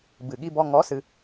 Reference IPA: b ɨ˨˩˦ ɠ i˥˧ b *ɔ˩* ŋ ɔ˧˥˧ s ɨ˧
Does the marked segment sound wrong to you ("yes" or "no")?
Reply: yes